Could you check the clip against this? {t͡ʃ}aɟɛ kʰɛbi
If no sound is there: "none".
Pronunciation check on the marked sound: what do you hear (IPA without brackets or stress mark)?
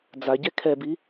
d͡z